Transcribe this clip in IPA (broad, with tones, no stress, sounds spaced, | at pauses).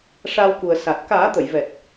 ʂ aː˧ w k u˨˩ ə̯ s a˨˩ t̚ k aː˨˩˦ t̪ ə˨˩˨ j v ɛ˨˩ t̚